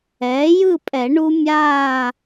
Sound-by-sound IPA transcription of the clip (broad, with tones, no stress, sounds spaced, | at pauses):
ɛː˩˥ j ɯ˥˨ pʼ ɛ˨˩˦ ɳ u˦˥ mʲ aː˥˨